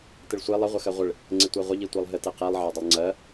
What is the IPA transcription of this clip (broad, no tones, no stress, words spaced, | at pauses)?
tɪɭsʷe lˠɪ ʁʷəxɜʁʷɪɭ | ŋ͡ǀɪtʷɜʁʷə ʎitʷɜlˠɦɪ teqilˠ ʕɜdˤəlˠŋ͡ǀɜ